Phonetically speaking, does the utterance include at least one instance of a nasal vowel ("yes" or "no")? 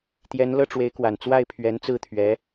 no